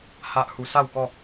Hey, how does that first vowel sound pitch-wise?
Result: high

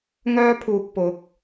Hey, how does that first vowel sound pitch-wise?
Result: high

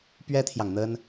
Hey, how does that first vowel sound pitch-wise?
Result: high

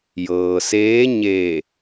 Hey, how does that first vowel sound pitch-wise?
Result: low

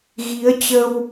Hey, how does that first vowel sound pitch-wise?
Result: rising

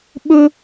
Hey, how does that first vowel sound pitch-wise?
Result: high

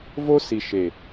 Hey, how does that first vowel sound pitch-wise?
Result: high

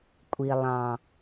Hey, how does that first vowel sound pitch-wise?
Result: low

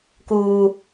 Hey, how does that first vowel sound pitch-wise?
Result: high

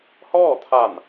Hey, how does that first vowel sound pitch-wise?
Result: falling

